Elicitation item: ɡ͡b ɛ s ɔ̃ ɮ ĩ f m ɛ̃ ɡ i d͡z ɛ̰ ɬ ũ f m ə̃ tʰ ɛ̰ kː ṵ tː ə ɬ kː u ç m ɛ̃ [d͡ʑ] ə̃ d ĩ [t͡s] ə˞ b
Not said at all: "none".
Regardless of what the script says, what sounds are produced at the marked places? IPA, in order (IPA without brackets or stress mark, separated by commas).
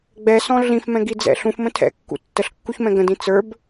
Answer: ɡ, t͡s